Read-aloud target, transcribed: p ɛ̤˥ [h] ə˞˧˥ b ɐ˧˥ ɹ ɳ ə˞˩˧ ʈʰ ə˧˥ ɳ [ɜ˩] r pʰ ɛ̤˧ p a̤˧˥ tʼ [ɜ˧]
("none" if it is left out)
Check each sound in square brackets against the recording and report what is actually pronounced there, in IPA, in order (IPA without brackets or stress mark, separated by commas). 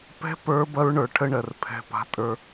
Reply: p, ɜ˩, ə˞˧